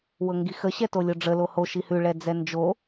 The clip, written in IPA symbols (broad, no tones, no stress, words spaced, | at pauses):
wɤŋɡixə ɕɛtolʲʊɖ͡ʐə loho ʃihʉ ɭɛd͡zɛnd͡ʒo